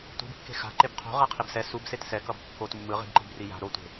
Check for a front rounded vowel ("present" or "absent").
absent